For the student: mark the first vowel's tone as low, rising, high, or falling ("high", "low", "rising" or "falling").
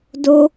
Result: high